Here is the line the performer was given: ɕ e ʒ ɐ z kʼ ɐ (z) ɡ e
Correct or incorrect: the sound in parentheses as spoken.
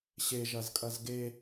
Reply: correct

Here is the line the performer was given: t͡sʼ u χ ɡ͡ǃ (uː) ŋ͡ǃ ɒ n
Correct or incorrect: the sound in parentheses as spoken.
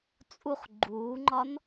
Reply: correct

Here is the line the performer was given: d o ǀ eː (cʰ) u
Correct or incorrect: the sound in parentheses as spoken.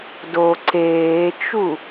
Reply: incorrect: t͡ʃ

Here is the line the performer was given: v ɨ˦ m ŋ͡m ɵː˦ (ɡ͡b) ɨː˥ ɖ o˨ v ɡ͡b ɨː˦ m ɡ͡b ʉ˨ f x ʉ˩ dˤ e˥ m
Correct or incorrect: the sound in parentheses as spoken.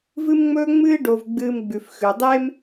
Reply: incorrect: ŋ͡m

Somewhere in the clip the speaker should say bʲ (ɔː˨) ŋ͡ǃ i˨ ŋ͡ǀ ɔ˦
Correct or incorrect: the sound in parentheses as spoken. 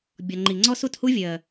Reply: incorrect: ɔ˨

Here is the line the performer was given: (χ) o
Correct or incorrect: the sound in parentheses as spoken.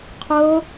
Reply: incorrect: qʰ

